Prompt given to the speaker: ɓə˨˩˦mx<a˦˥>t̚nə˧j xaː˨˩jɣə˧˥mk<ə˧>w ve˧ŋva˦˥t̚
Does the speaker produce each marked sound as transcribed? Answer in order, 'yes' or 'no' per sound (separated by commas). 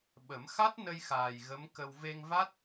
yes, yes